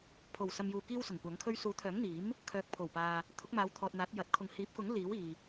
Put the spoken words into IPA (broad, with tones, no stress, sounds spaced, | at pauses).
pʰ o˨˩ w s ɐ˨ m j uː˨ k iː˥ w s ʊ˨˩ ŋ kʷ ɐ˨˥ ŋ kʰ ɵ˥ ɥ s uː˨˥ t̪ʰ œː˨˥ ŋ n̪ iː˨˥ m | kʰ œː˨ k̚ pʰ o˨˩ w p aː˨ | t̪ʰ ʊ˨˥ k̚ m aː˨˧ w t̪ʰ ɔː˨ t̚ n̪ aː˨˥ t̚ j ɐ˨˥ t̚ kʰ ʊ˨ ŋ h iː˨˥ p̚ k ʊ˨˥ ŋ l iː˨˥ w iː˨